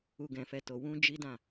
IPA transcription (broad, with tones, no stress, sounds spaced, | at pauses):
u˨ ɡ ɛ̃˨ f ɛ˨ t o˨ w ũ˧ d͡ʒ i˦ d ã˦˨